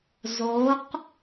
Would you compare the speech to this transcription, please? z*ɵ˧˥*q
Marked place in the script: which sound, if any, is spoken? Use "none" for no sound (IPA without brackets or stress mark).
o˧˥